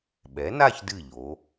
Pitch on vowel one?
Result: rising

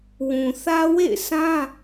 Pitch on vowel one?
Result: low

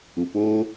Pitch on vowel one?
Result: low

